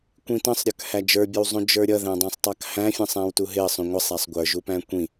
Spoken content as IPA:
kʷĩtə̃sˤɾʲə˞k hæd͡ʒə˞bʲəwzˤũ d͡ʒə˞ɾʲʌðæ̃dˤæ̃sˤ tˤɑkhæ̃fʲə̃ sˤæ̃wtuɦɪə̯ sˤũŋʷʌsˤ æsˤɡʷə˞ʒu pæ̃kʷĩ

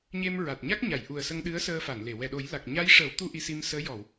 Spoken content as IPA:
ɲe˧m ɹa˨˩t̚ɲa˦˥k̚ɲa˨˩˨j ʔu˨˩ə̯sə˧ŋ ɗɨ˧˥ə̯səː˧fa˨˩˨nle˨˩˨ wɛ˨˩ɗo˨˩˦jla˨˩k̚ ɲa˧˥jʂəː˨˩˦wt̪u˧ ʔi˧si˧msəː˧˥ jɔ˨˩˨w

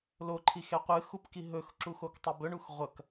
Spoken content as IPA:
loǃʰixe qʷɨxupki ɦɵxǁuxoktˤob ɵɳux ʁʷɐk

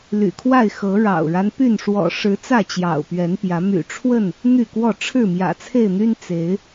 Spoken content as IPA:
ly̰˨˩kʰwa˥˨ɪ̯xɤ˨˦ ɻɑ̰˨˩ʊ̯ɻa˦npy˥˨n ʂwɔ̰˨˩ʂɻ̩˨˦ t͡sä˥˨t͡ɕjɑ̰˨˩ʊ̯pɥɛ˨˦npjä˨˦ my̰˨˩ʈ͡ʂʰwə˥˨n | n̪y˥˨kwɔ˥˨ ʈ͡ʂʰɻ̩˥˨ mjä̰˨˩t͡sʰe˥˨ɪ̯n̪y˦n t͡se˨˦ɪ̯

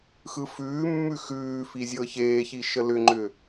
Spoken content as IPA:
xɯfʉːmːʉ xʉːfi zʲɤçeːçi ʃəlʏŋ͡ǃʏ

